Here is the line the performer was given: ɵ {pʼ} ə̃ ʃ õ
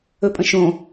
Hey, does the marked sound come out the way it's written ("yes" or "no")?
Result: yes